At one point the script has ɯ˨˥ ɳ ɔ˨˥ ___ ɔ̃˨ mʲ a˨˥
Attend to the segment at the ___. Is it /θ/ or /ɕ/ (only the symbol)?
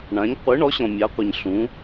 ɕ